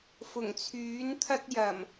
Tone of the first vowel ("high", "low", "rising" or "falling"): low